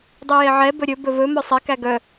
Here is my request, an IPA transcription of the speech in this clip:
dˤ y j e ʕ ɛ b ɵ ɾʲ ɵ b ɵ v ɵ m œ sˤ e k æ ɡ œ

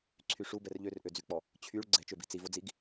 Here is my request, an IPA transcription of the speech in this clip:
ǀʰ y ʂ u b ɛ r ʎ ø r ʔ ø d͡z y k͡p ɔ | t͡ɕʰ y ɭ ɡ͡ǀ ɛ̤ t͡ʃ ø b i̤ t͡s i v o d͡z i ɡ

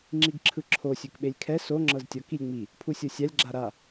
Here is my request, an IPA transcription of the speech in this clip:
ŋ͡ǁ i ɡ ǁʰ ɯ ǁʰ o sʲ u k ɓ e lʲ kʰ ɛ s o ŋ͡ǁ ɤ z tʲ ɔ k i lʲ ŋ͡m i | pʰ u sʲ ɤ sʲ a lʲ ɡ͡ǁ a ɾ a

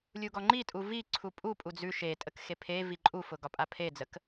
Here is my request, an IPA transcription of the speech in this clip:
lʲ u ɡ ɔ ŋ͡ǃ i tʼ u v i ǀʰ u pʼ u pʼ u d͡z ʉ ʃ e tʼ ə k x e pʰ e v i ǃʼ u f ʊ ɡ ɒ pʼ a pʰ e d͡z ə k

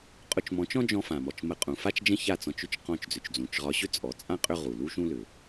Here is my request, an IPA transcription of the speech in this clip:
qʼ ʊ˧ t͡ʃ m ɔ̃˨˦ t͡ʃ ɔ̃˦ d͡ʒ ɔ̃˧ f ã˨ m ɔ˨ t͡ʃ m ə˧ qʼ ũ˨ f a˦ t͡ʃ d͡ʒ ə̃˦ ç a˦˨ t͡s ɔ̃˧ t͡ʃ ʏ˦ t͡ʃ q ɔ̃˦˨ t͡ʃ d͡z ʏ˨ t͡ʃ d͡z ũ˨ t͡ʃ ʁ ɒ˧ ɕ ʏ˦ t͡sʼ ɔ˨ t͡sʼ ã˦ qʼ ʏ˦ ʁ u˨ l u˦ ʃ ũ˦ l ʏ˨

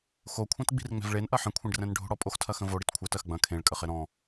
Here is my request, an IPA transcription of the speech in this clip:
x o kʷʰ ɛ̃ t ɡ͡b i̤ r ŋ͡m ɛ̤ v ɭ e n ʔ ɐ ħ ə̃ kʷʰ ẽ ɖ r ɛ̃ n ɖʱ o̤ ɽ ɔ pʼ o x tʰ ɐ x ə̃ v o ɽ i t kʷʰ ɜ t ɜ x ɡ͡b ɐ̃ kʰ ẽ ɭ kʼ ə χ e ɾ ɔ̃

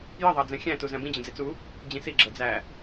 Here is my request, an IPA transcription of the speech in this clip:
j ə ðˤ ɑ d͡z ɛ̃ xʲ æ̃ t u z æ̃ b ĩ d͡ʑ ə̃ d͡z i t͡s u | d͡ʑ ĩ s i ɡ͡ǁ ʌ d͡z æ

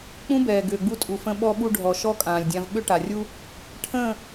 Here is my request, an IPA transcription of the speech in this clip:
k͡p ũ˦ b ɛː˨ ɡ ʏː˨ ɡ͡b u˧ tʼ u˨ f ə̃˧ ɓ ɔ˧ ɓ u˧ ɖʱ ɔ˨ ʃ ɔ˦ kʼ ãː˨ lʲ dʲ ã˧ v ɓ ʏ˦ ʈ a˨ rʲ u˦ | ʈʰ ə̃ː˦˨

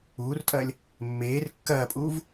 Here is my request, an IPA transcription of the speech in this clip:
uː r tʼ ɐː lʲ | mː eː r kː ɐː pʼ uː v

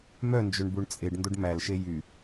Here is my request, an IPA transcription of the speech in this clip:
m œ n d͡ʒ ɵ ɳ b u ɳ t͡sʼ e ɖ n d o ɖ m æ l ʃ e j y

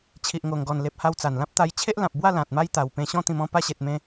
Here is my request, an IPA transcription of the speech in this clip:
t͡ɕʰ i˨ ʔ ŋ o˨˩ ŋ ɡ ɔ˨˩ n l e˨ p̚ h a˧ w t͡s a˨˩ n l ã˦ p̚ t̪ a˧ j t͡ɕʰ e˦ ʔ l ã˨ p̚ b w a˥˧ l ã˨ t̚ m a˦ j t̪ a˨˩ w p ẽ˧ ɕ ɔ̃˥˧ t̪ ĩ˧ m ɔ̃˦ p a˧ ɕ e˨ t̚ m ẽ˧

